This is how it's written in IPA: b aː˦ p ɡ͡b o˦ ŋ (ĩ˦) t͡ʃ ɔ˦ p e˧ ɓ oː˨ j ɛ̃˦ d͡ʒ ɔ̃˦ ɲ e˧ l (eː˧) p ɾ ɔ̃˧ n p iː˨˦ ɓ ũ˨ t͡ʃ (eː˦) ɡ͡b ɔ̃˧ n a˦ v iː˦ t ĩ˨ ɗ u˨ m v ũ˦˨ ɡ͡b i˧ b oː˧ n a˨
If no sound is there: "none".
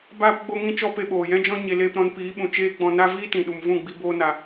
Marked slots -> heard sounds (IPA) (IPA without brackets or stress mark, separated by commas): ĩ˦, eː˧, eː˦